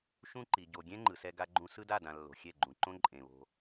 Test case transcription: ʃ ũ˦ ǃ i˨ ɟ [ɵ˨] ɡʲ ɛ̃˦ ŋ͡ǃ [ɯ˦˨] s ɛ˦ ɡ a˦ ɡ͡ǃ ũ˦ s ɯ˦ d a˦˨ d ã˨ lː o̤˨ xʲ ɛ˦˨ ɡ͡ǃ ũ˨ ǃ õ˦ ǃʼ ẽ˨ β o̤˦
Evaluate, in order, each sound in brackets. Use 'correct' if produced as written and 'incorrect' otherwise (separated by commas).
incorrect, incorrect